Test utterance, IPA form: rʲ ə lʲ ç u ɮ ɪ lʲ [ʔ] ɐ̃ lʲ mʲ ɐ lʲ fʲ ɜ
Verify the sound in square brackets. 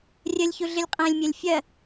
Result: incorrect: qʼ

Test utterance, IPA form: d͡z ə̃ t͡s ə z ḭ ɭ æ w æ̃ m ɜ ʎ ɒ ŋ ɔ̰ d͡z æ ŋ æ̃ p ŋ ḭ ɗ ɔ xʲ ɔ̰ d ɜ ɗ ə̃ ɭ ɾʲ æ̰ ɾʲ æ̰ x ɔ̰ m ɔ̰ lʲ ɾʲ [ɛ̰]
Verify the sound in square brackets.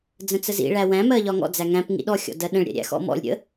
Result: incorrect: ə̰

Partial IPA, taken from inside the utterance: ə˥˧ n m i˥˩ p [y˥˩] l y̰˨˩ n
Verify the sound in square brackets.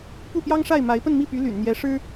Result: incorrect: y˧˥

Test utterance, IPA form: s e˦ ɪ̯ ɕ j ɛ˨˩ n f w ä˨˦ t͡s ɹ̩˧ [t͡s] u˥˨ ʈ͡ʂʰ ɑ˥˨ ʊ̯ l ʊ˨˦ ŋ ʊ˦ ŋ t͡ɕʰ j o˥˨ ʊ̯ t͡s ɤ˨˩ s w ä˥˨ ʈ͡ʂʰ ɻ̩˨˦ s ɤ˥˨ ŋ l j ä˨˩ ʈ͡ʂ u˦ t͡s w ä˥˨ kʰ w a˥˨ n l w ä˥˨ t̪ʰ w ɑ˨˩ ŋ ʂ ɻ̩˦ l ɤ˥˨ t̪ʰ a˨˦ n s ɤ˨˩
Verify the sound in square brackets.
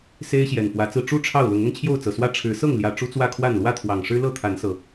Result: incorrect: ʈ͡ʂ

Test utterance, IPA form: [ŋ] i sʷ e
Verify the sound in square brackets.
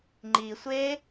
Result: incorrect: ŋ͡ǃ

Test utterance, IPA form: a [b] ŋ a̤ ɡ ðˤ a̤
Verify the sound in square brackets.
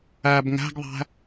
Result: correct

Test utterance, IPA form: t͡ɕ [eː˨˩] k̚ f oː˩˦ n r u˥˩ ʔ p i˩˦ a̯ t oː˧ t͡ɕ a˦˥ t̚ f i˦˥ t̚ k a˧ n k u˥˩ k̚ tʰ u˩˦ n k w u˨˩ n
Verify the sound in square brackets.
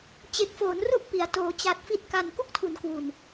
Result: incorrect: e˨˩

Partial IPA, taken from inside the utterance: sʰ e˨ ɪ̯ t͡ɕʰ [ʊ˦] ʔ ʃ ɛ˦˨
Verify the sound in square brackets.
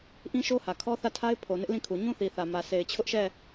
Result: correct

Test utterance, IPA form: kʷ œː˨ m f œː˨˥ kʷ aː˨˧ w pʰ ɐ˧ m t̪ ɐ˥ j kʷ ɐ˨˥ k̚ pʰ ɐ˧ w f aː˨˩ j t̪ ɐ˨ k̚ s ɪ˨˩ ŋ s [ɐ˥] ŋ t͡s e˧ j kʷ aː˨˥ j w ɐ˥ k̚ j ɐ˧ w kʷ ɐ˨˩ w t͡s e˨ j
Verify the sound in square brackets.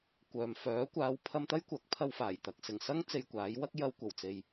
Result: correct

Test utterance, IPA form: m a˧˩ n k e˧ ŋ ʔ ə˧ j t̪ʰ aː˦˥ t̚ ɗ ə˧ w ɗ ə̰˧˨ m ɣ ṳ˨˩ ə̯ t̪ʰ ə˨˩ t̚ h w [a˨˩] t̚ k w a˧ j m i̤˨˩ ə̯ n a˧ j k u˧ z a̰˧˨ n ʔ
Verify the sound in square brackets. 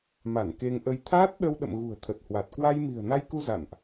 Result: correct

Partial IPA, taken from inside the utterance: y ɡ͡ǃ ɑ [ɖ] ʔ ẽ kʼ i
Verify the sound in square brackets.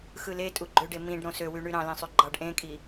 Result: correct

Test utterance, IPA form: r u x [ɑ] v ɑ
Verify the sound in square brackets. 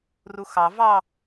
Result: correct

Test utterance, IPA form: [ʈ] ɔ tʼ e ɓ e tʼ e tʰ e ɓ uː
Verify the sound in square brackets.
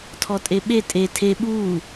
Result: incorrect: tʰ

